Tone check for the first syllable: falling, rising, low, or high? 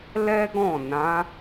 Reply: high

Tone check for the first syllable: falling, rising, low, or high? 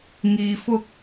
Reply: low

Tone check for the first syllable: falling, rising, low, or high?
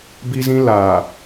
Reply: high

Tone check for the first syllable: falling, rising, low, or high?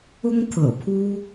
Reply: high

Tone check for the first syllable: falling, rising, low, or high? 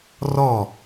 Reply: falling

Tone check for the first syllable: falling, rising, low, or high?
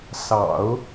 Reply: low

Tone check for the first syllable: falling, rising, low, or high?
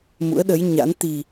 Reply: rising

